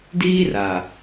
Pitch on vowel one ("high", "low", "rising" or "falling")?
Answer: high